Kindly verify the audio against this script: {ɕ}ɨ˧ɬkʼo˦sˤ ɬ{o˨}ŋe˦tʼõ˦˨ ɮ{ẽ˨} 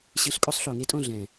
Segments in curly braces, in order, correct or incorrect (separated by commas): correct, correct, incorrect